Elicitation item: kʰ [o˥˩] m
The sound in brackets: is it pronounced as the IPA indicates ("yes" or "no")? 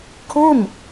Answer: yes